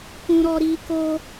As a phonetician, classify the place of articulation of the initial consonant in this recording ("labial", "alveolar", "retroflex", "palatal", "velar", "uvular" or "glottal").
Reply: velar